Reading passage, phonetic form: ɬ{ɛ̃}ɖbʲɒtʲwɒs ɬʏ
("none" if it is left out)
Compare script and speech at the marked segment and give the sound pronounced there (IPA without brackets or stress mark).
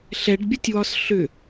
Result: ɛ